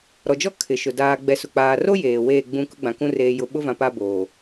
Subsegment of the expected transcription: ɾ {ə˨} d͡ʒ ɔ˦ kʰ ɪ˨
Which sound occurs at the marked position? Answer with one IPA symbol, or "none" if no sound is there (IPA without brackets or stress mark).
ɔ˨